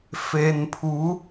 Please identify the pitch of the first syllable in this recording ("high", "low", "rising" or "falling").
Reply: low